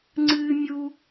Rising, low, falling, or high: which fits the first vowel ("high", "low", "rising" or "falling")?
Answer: high